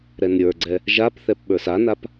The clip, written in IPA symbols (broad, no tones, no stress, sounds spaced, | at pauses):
ɾ ɛ n ɾʲ ə˞ ɡ͡ǀ ɛ | ʒ a p θ ɛ p ɓ ə˞ s a n a p